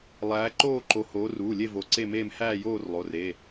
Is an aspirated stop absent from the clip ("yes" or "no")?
yes